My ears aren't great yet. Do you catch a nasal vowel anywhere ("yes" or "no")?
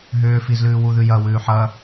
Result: no